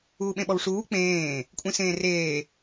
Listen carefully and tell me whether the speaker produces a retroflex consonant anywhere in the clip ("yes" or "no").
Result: yes